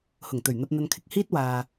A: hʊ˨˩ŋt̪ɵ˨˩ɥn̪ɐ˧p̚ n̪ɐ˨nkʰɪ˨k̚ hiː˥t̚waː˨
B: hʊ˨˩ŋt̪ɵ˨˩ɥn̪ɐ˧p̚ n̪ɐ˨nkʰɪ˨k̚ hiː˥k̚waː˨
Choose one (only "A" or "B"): A